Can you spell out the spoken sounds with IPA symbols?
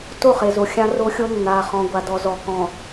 t o˦˨ χ e˨ z o˨ xʲ ã˦ r o˦ xʲ o˦ nː a˨ χ ɔ̃˨ ɡʷ a˨ d ɔ˨ z ɔ˨ k ɔ̃˨

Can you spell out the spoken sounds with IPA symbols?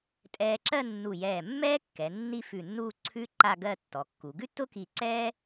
tʼ ɛː˧ ǁ ɜ˥˧ nː u˧˩ j ɛː˧˩ mː ɛː˥ kː ɛ˩˧ nː i˥˧ f ʉ˧˩ nː uː˥˧ ǀʰ ʉ˥ ǃ a˥˧ ɡ ɜ˥˧ tː ɔ˩˧ kː u˩˧ ɡ ʉ˥ tː ʊ˥ k i˧˩ ǀ ɛː˥

